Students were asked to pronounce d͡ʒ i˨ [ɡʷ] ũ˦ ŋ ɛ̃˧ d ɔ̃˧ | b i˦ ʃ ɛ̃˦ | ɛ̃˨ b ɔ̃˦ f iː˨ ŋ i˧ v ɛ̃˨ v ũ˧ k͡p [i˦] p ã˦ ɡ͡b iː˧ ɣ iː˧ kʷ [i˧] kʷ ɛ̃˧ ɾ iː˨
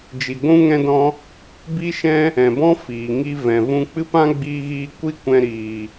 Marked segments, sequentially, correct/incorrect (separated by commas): correct, incorrect, incorrect